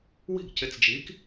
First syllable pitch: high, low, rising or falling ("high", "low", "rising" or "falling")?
falling